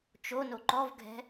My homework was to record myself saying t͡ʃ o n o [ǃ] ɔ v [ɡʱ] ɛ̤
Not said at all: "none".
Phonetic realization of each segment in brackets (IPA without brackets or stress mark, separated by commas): ǃ, ɡʱ